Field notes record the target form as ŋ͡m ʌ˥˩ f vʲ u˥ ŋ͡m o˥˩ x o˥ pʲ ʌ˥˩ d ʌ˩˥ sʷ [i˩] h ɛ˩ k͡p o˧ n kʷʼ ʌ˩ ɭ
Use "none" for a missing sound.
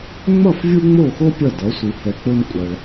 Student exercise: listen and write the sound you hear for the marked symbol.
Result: i˩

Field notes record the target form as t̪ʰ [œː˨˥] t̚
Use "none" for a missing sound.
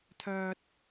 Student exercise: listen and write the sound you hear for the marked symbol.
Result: œː˥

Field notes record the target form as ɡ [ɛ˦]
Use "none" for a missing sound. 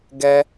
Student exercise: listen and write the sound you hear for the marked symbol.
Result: ɛ˦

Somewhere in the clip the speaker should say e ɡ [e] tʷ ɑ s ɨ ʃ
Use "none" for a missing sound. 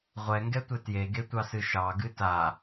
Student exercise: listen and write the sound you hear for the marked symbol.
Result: e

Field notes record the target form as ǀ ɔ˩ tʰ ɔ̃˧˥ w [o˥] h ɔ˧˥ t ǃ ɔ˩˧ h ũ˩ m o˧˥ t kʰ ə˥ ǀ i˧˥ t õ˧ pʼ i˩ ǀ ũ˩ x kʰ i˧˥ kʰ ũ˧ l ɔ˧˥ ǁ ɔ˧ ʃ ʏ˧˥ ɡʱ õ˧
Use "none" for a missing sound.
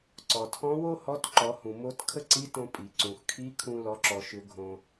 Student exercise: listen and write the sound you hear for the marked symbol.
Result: o˥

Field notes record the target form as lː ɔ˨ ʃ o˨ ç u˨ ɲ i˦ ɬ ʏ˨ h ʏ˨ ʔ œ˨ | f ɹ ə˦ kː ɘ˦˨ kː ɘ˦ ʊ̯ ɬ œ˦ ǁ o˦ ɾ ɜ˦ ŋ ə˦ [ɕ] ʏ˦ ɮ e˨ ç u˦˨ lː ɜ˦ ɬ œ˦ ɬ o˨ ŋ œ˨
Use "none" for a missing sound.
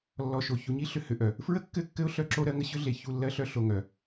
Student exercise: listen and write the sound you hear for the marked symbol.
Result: ɕ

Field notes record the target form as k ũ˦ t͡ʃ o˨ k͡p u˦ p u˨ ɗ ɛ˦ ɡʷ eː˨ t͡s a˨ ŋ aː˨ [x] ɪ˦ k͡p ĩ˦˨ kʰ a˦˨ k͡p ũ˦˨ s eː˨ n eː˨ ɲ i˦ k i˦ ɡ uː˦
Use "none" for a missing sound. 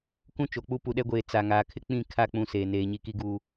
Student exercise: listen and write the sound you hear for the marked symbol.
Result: kʰ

